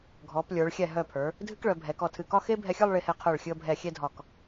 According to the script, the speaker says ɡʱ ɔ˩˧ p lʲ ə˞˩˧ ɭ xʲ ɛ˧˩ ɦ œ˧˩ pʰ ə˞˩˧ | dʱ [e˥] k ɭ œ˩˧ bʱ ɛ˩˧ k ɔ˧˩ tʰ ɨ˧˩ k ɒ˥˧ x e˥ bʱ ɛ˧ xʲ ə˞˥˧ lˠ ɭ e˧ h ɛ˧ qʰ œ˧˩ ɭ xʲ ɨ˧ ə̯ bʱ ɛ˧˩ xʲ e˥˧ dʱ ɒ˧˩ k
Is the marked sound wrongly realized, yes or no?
yes